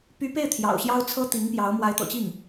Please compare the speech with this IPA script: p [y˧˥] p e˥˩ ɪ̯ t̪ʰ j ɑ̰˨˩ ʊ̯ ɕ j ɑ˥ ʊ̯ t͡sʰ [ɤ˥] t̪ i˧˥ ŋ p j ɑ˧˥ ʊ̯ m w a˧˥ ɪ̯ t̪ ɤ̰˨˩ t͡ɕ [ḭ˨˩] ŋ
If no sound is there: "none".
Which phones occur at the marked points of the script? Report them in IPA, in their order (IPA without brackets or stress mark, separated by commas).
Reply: y˧˥, ɤ˥, i˥˩